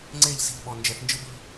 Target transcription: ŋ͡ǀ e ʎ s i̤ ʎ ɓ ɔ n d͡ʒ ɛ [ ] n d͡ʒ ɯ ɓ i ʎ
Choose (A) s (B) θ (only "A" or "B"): B